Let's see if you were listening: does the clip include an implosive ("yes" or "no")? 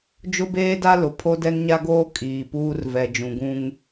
no